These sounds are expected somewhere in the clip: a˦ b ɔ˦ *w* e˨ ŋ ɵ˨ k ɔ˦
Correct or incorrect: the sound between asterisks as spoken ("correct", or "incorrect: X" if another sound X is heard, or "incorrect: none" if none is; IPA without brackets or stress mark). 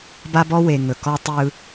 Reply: correct